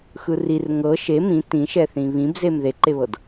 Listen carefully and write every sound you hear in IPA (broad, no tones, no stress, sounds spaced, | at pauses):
x ɯ r i r ŋ ɤ ʃ e m ĩ t ĩ ʃ ɛ θ ĩ β ĩ b z e m ð e ǃ e β ɤ d